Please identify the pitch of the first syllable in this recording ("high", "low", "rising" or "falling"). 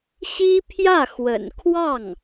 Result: high